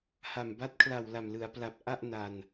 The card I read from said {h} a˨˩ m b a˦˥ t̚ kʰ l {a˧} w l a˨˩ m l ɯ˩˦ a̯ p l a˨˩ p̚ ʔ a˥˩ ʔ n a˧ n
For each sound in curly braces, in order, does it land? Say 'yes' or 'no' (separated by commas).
yes, no